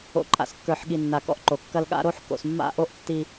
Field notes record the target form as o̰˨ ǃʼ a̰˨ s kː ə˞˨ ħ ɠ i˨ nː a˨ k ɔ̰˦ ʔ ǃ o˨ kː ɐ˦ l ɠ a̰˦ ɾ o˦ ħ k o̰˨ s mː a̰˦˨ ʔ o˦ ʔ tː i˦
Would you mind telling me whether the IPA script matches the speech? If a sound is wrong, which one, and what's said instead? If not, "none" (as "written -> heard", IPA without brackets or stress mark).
none